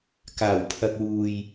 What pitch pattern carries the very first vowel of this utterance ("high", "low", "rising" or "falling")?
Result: low